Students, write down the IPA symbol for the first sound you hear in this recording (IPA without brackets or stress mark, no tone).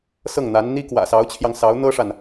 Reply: s